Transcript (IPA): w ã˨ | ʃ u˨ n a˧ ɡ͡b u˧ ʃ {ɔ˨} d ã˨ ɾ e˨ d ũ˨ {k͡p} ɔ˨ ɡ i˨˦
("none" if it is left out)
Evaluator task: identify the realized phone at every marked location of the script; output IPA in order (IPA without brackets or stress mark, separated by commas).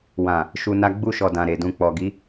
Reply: ɔ˨, k͡p